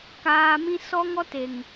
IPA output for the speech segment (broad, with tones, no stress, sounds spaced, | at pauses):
k aː˧ m ĩ˦ s ɔ˦ ŋ ɔ˦ t e˨ ŋ